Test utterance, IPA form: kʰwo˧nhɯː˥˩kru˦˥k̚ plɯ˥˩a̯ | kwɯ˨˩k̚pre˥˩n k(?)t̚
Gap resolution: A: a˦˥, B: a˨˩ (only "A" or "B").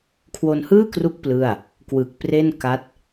A